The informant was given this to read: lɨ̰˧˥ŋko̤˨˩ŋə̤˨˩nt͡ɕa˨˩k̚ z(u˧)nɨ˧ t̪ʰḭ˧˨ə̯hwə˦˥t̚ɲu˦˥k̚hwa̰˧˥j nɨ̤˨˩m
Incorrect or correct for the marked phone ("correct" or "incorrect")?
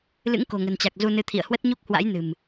correct